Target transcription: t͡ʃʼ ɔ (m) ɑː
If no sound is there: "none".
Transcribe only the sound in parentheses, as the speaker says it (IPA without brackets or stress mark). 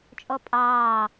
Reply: pʼ